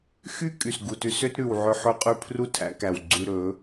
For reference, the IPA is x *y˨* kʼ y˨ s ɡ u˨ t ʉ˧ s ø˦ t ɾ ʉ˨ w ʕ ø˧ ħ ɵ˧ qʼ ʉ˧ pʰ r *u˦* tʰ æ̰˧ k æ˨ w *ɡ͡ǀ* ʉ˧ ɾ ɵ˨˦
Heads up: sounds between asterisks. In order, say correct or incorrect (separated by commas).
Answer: incorrect, correct, correct